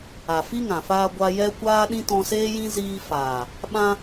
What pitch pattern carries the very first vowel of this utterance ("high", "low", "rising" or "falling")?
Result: low